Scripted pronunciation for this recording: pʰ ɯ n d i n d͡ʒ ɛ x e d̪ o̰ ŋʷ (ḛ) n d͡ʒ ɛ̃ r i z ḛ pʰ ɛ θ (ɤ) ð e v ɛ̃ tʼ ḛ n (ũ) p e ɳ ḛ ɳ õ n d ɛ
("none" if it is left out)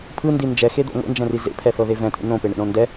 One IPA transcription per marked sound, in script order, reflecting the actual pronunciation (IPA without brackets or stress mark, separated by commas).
ḛ, ɤ, õ